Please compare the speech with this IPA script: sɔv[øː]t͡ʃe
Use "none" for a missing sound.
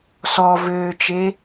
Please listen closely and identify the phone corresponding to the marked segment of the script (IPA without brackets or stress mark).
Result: øː